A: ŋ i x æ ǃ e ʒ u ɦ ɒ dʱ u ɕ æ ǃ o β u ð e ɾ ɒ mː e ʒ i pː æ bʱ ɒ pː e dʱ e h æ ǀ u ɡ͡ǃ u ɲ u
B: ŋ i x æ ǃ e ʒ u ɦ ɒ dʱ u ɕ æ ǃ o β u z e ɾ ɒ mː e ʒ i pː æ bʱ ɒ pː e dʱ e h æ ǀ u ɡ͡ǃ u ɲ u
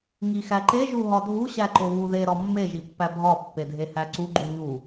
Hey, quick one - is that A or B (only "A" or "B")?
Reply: A